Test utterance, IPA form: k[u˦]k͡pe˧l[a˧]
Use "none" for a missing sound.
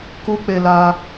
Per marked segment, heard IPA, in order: u˦, a˧

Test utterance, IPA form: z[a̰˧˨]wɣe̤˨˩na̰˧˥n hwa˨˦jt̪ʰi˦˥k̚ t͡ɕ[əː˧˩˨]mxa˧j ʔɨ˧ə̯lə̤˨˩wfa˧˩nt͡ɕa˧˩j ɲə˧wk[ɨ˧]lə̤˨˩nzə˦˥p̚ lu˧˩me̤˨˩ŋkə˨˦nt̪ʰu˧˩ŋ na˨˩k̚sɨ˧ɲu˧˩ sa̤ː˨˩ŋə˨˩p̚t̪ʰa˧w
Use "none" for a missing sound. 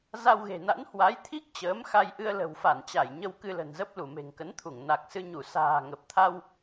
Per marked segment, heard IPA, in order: a˧, əː˨˦, ɨ˧

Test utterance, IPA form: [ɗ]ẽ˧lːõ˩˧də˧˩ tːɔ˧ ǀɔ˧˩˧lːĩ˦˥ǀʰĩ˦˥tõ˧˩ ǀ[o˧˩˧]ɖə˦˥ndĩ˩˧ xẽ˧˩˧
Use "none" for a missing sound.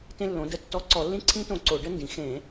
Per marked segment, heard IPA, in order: t, o˧˩˧

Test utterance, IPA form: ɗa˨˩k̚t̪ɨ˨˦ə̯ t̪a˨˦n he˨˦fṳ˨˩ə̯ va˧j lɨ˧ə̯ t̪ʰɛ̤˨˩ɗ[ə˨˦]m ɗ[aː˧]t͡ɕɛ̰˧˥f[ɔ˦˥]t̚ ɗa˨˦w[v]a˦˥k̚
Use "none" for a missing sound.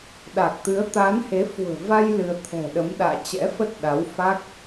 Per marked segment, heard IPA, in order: ə˨˦, a̰ː˧˨, ə˦˥, f

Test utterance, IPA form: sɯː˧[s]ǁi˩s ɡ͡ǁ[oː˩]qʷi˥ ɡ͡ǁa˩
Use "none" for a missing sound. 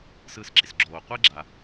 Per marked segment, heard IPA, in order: s, oː˩

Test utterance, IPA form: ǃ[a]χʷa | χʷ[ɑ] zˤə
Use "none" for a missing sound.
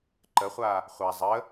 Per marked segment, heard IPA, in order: ə, a

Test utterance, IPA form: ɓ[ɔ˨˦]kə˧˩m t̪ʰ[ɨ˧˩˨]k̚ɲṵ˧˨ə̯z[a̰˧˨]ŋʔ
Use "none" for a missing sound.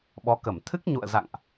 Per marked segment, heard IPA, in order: ɔ˨˦, ɨ˦˥, a̰˧˨

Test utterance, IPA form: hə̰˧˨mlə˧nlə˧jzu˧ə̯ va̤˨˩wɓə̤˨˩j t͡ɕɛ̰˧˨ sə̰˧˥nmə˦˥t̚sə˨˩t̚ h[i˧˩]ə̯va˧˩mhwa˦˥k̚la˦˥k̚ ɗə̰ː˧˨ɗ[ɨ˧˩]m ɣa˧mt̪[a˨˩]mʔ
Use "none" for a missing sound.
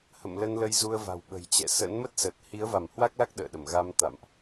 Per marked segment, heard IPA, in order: i˨˦, ə˧˩, a̰˧˨

